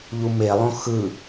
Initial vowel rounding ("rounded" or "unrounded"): rounded